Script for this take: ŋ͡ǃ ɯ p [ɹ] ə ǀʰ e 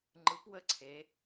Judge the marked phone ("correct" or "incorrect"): incorrect